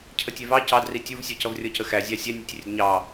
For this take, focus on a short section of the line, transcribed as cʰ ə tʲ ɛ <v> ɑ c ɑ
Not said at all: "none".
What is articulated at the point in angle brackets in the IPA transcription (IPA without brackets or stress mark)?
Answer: v